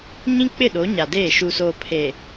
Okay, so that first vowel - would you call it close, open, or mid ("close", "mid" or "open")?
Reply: close